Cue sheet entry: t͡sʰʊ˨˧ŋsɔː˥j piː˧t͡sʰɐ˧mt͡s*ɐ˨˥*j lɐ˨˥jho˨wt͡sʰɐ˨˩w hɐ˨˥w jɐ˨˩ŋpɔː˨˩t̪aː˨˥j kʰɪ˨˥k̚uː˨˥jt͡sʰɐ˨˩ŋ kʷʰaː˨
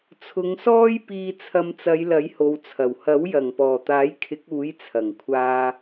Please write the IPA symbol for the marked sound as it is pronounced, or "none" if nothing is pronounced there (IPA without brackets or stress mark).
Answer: ɐ˨˧